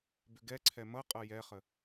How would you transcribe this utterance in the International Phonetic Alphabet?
bʏɡɛǀʰɛ mʌqʼʌ jɛχə

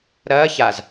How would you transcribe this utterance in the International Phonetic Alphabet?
ɾɐː çaz

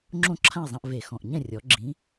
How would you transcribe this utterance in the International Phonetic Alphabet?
ŋ͡ǁõ˥˨ǁʰã˥˨e̯ zˤã˧ʔve˨˩xɔ̃˨˩ʔ ɲɛ̃˥˨rʲɔ˨˩˦ ɡ͡ǁĩ˨˥

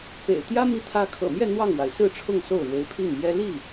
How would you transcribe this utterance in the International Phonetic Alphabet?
pḛ˨˩ɪ̯ t̪jä˥ mi˥t̪ʰä˥ kʰɤ̰˨˩mjɛ˥˧ n̪wɑ˥˩ŋwa˩ɪ̯ sɹ̩˥˧ʈ͡ʂʰʊ˥˧ŋ so˥˩ʊ̯ɻwe˧˥ɪ̯pʰi˥˩ŋmjɛ˥ li˥˩

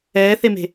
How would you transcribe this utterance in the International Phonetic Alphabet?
ɛːθeme̤

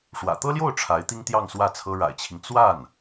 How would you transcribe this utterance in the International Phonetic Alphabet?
ʂwä̰˨˩t̪ɤ˥ljo˥˩ʊ̯ ʈ͡ʂʰa˧˥ɪ̯ t̪i˥ŋt̪jɑ˥˧ŋ swä˥˩t͡sʰɤ˥ ɻa̰˨˩ɪ̯t͡ɕʰi˦ŋ t͡swa˥˩n

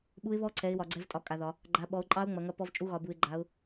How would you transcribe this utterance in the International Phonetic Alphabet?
ɓu˦˥ɪ̯βɔ˦˥ǀʰɛ˨˦ɪ̯ wɒ˨˦ɡ͡ǀɛ˦˥vtʼɒ˨˦ kʼa˨˦ðɒ˨˦ | ɡ͡ǃa˨˦ ɓɔ˨˦ʊ̯ǃʼɑ˦˥ʊ̯ ŋ͡mɐ˨˦ŋɐ˦˥ pɔ˦˥vt͡ʃʼu˦˥ɣɒ˨˦bu˨˦ɪ̯ ɡ͡ǃa˨˦ʊ̯

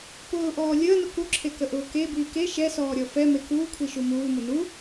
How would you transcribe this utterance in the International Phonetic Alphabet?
pʊːʔɔː lʲəːnʊ kuǁʰekəʔʊː kebiː ke ʃɛsɔːɾʲɔ fɛme kuːkʷʰiʃu muːmʊ nu

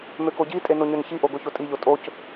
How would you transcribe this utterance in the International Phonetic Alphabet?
møkoɟitʼe noɲønçiʔo ɡoçotʼiʎo tʼoc

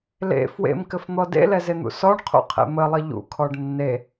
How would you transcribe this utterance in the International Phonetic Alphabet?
lḛ fwḛmkɘfn̪ɔ dḛlɛzen̪ṵ sɔɳqʰṵqʰḛ məlˠə ʎṵkʰɔɖ nːe

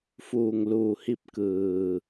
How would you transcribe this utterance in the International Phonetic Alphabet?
fuː˩ŋluː˩hi˧˩p̚ kɯː˩

